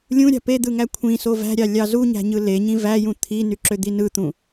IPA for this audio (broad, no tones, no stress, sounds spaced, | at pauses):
lʲ ũ ɾʲ ɑ̤ p e d̪ ɯ ŋ æ kʷʰ ĩ s o v æ̤ ɾʲ ɑ lʲ ɑ z u ɲ æ̤ ɲ ɯ l e ɲ ĩ v æ j ũ t̪ʰ i n y ǁ ø d̪ i n ɯ t̪ ũ